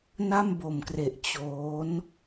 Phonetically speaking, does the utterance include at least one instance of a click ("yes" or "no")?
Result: no